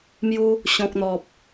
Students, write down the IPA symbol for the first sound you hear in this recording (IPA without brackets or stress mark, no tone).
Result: m